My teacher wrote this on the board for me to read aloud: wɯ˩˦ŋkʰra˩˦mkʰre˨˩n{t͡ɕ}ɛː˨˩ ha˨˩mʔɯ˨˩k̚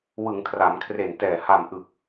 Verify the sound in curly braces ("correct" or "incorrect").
incorrect